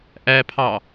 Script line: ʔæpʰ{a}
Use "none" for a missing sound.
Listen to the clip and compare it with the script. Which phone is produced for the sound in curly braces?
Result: ɑ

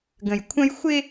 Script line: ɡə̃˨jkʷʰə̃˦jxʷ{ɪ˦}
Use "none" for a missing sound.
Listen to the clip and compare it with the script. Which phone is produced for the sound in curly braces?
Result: ɪ˦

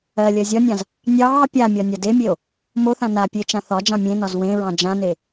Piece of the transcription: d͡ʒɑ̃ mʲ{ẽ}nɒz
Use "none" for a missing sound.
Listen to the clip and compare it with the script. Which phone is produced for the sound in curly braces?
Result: ẽ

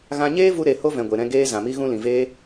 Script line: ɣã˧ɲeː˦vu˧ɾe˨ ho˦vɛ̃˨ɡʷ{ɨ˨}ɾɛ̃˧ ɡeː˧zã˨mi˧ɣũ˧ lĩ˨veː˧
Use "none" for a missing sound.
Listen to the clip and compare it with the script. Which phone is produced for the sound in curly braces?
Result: e˨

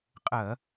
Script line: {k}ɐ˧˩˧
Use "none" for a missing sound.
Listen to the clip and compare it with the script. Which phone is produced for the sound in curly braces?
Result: qʼ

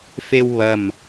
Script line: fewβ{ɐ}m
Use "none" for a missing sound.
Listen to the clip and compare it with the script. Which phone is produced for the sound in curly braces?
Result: ɐ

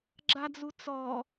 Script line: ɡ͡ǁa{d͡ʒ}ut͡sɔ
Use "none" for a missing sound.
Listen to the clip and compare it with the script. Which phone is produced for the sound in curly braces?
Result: d͡z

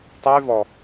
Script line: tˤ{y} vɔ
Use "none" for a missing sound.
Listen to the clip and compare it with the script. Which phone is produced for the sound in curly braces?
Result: y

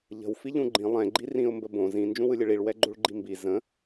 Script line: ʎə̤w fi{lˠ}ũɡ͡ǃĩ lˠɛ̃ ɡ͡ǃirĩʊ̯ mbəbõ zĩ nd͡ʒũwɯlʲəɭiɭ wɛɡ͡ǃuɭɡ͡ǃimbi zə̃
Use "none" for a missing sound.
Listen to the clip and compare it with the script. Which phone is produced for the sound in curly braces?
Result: ʎ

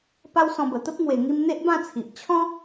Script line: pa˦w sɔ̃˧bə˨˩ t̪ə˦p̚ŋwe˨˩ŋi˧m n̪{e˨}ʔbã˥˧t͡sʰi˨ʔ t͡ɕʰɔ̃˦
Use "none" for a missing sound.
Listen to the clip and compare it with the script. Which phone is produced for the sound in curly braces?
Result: e˦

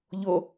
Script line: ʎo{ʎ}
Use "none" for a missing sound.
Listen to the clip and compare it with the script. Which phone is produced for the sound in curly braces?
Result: none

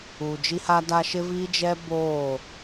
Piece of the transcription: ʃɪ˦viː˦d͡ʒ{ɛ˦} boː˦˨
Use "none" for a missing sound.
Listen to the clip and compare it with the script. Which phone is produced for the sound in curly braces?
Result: ɛ˦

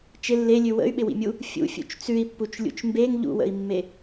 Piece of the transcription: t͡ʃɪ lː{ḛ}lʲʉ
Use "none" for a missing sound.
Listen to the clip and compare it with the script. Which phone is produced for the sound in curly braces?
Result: e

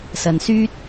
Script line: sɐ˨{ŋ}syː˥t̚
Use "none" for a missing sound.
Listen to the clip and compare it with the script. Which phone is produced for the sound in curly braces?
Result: n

